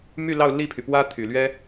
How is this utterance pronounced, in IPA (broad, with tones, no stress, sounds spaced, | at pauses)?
m y˥˧ l ɑ˥˧ ʊ̯ l i˥˩ pʰ y˩ p w ä˥ t̪ʰ y˨˩ l ɥ ɛ˥